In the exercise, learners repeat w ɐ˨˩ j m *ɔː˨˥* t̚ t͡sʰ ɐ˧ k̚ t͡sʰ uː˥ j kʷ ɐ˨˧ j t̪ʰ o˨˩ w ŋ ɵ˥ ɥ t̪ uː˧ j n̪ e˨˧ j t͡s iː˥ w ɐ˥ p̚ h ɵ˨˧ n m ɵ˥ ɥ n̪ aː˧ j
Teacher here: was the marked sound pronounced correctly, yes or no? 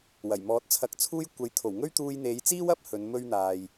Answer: yes